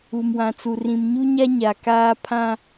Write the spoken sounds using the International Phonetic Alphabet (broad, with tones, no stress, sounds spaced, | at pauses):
u˨ m w ã˨ t͡s u˨ r ĩ˨ m ɲ u˦ ɲ a˦ ɲ a˨ k aː˦ pʰ ã˦